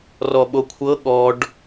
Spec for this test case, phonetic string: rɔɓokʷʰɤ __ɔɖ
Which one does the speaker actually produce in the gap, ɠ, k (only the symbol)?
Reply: ɠ